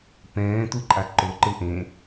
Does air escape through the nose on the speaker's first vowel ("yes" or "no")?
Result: yes